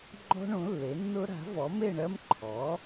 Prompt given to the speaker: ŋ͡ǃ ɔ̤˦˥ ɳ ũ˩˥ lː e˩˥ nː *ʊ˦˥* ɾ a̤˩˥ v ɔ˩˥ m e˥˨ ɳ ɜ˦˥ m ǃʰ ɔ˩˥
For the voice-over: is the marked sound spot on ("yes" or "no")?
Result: yes